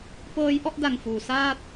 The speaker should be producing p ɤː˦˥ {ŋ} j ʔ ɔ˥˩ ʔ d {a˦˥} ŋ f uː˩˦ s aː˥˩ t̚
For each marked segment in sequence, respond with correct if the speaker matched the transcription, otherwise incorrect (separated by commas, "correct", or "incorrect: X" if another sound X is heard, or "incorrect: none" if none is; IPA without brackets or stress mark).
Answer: incorrect: none, incorrect: a˨˩